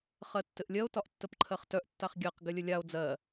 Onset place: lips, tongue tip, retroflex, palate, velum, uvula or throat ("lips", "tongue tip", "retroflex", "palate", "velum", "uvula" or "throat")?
uvula